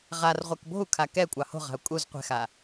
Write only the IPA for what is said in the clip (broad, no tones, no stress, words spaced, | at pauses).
ʁarʁʷɛk bo̤u̯kʰa kɛ kʷʼɑho̤ʁa̤u̯ kʼuz qʷɛ̤xa